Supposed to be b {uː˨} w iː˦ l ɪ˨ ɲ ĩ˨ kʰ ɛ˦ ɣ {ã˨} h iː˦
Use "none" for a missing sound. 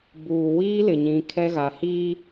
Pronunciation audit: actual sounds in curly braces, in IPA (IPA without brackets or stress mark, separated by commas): uː˨, a˨